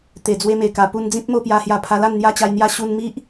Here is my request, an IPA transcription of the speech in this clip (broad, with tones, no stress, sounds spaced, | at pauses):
t̪ e˨˩ d͡z w e˧ m e˨˩ k a˨˩ p u˧ n d͡z ĩ˦ p̚ m o˥˧ p j a˧ h j a˧ pʰ a˧ l a˥˧ n n̪ j a˦ t͡ɕ a˧ j n̪ j a˦ ɕ u˧ n m i˦ ʔ